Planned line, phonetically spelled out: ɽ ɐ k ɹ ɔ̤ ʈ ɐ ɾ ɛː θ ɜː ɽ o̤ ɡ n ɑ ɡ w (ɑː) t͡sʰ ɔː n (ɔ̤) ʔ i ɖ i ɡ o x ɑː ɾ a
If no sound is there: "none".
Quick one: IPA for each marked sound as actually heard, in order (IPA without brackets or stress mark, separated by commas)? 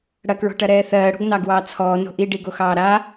ɑː, o̤